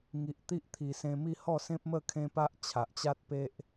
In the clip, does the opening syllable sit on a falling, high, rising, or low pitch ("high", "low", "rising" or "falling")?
low